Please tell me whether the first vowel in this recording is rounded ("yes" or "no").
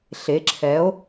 no